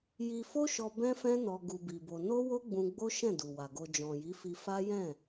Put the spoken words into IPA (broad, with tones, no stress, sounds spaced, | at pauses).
j i˧ f o˦ ʃ ɔ˧ b ɛ̃˦ f ɛ̃˦ n ɔ˧ ɡ u˧ b i˧ b o˧ n o˦ w o˦ ɡ͡b ũ˧ ɡ͡b o˦ ʃ ɛ̃˦˨ d u˨ w a˨ ɡ o˧ d͡ʒ ɔ̃˨ j i˨˦ f i˧ f a˦ j ɛ̃˦˨